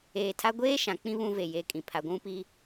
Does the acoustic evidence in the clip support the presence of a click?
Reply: no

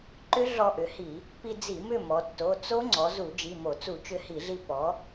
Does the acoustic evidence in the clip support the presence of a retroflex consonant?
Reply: no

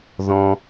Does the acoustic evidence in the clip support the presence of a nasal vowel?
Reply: yes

